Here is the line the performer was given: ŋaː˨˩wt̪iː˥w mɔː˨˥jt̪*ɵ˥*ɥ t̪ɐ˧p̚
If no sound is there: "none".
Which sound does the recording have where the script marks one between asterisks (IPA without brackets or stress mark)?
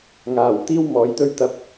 ɵ˥